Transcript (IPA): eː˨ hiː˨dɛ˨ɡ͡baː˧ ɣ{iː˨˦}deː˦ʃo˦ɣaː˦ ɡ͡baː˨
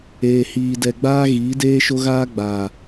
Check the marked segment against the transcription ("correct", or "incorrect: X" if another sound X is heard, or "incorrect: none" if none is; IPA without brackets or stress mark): correct